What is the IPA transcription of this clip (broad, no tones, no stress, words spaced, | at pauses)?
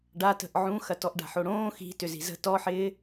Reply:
ɖatə̤ʔ ʕũxɐ tɔʔɖa̤ħoɽõː xi̤tʏ zi̤zə̤ tɔħɪː